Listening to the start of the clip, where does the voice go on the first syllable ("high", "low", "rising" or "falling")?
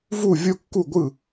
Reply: falling